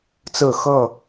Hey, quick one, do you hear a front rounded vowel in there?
no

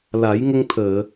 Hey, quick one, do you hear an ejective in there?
no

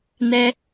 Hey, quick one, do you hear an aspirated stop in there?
no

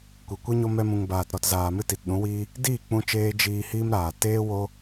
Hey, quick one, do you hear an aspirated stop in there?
no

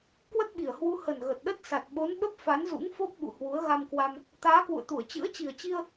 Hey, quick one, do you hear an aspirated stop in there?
no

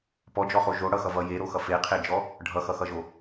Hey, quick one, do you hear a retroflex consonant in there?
yes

